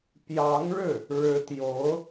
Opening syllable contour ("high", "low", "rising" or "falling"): rising